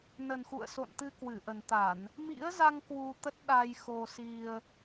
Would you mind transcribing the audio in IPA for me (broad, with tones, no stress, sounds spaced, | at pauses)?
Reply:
n ə˨˩ n x ṵ˧˨ ə̯ s o̰˧˨ n t̪ ɨ˧ k w ɨ˧˩ ʔ ə˨˩ n t̪ a˧˩˨ n | m ḭ˧˥ ə̯ z a˧ ŋ k w u˧ t̪ ə˦˥ t̚ ɗ a˧ j x o˧ s i˧ ə̯